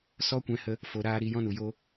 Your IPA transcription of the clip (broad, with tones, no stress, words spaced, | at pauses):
sɔ˦kʷɛ̃˧hə˧ | fo˧ɾaː˦ ɾi˨˦jɔ̃˦nu˨jo˦